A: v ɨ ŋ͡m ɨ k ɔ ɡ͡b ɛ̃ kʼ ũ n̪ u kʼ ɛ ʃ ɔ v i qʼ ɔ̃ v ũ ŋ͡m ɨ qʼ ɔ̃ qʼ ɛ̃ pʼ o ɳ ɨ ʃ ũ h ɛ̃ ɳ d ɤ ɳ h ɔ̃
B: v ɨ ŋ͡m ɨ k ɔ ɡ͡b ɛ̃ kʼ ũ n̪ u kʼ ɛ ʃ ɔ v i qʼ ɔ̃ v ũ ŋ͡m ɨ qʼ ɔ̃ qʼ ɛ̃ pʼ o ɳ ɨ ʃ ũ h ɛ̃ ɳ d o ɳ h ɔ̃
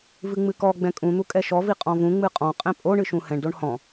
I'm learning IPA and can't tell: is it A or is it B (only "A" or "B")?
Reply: B